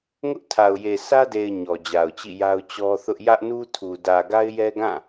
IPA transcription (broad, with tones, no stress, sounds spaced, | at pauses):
ŋ ʊ˦ ʔ tʰ a˨ ʊ̯ j e˨ sʰ ä˦ d e˨ ɪ̯ ɲ ɔ˨ d͡ʑ a˨ ʊ̯ t͡ɕ ḭ˦˨ j a˦ ʊ̯ t͡ɕ ɔ˦ θ ʊ˦ ʔ j ä˦ ʔ n u˦ tʰ u˨ d ä˨ ɡ a˦ ɪ̯ j ɛ˦ ɡ ã˦˨